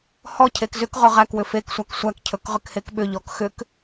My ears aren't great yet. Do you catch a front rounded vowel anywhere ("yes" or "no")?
yes